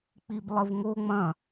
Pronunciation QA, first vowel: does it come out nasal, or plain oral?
oral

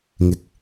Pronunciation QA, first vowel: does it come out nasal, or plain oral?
oral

